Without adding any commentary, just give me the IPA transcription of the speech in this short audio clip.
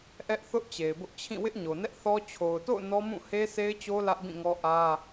ʔ ɛ˦ ʔ θ ʊ˦ ʔ t͡ɕ e˨ ɪ̯ b ʊ˦ ʔ t͡ɕʰ ĩ˦˨ w ɪ˦ ʔ ɲ o˨ n ɛ˦ ʔ θ ɔ˦ t͡ɕʰ o˨ ʊ̯ t o̰˦˨ ʊ̯ n ɔ˦ m ũ˦˨ h e˦ sʰ e˦ ɪ̯ t͡ɕ o˦ l ä˦ ʔ b ĩ˦˨ ŋ ɔ˦ ʔ ä˦

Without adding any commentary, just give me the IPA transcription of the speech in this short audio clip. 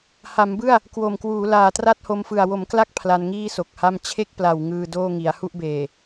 h a˩˦ m b ɯ˥˩ a̯ | k w o˨˩ m k w uː˩˦ l aː˨˩ t r a˥˩ t̚ h o˧ m f ɯ˨˩ a̯ w o˩˦ m k l a˥˩ k̚ pʰ l a˧ n ŋ iː˥˩ s o˨˩ k̚ h a˥˩ m t͡ɕʰ e˥˩ k̚ p l a˨˩ w ŋ ɯː˧ d oː˥˩ ŋ i˩˦ a̯ h u˥˩ ʔ b eː˨˩

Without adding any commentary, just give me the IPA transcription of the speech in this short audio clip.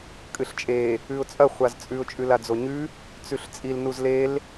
kʼ ɨ ɬ t͡ʃʼ e | ʉ ʊ̯ t͡sʼ ɐ χʷ a z t͡sʼ ʉ ʊ̯ t͡ʃʼ ʉ l a d͡z o ɲ ʉ | t͡s ʉ ɬ t͡sʼ i l n u z l e l

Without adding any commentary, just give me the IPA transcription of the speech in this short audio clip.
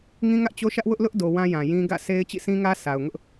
ŋ ĩ˦ ŋ ä˦ ʔ t͡ɕ o˦ ʃ ä˦ ʔ w ʊ˦ ʔ l ʊ˦ ʔ d o˨ w ã˦ j ã˨ j ĩ˦ ɡ ä̰˦˨ sʰ e˦ ɪ̯ t͡ɕ ḭ˦˨ s ĩ˦ ŋ ä˦ sʰ a˨ ʊ̯ ŋ ʊ˦ ʔ

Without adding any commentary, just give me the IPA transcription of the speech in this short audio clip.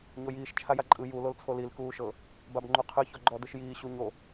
ɲ o j iː ʃ t͡ʃʰ a j a ǃʼ ɯ j u l o l t͡sʰ o l i l k uː ʃ ɤ | b a b ŋ͡ǃ u qʰ ɯ ç ɔ ɡ͡ǃ ɔ d ɯ ʃ j iː ɕ u ɲ o

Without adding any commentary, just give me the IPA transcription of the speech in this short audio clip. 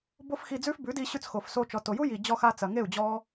b o˦ f x i˧ d͡z ʉ˦ f b ʉ˨˦ d i˧ ɕ ʉ˧ t͡s x o˨ f s o˧ t͡ʃ ɔ˨ t o˨ j u˦ j i˨ d͡ʑ ɔ˧ x a˧ t͡s ɐ˨ ŋ e˦˨ u̯ d͡ʑ ɔ˦

